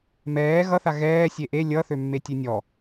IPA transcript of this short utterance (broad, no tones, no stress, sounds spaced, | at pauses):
m ɛː ɣ ʌ θ a ɣ ɛː sʲ e ʔ e lʲ ʌ θ ø mː e tʲ e nʲ ɔ